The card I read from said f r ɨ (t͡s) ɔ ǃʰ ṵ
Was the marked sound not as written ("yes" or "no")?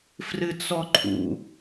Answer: no